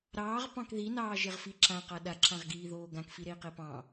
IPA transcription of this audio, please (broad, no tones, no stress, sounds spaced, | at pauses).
ɾ ɑː ʁ p ɑ̃ k ð i n ɑː ʒ e ʁ f i ǁ ã q a ɗ a ǁ ã ʁ ɡ iː ð oː ɡ ã k f i ɾ e i̯ q e p ɑ̃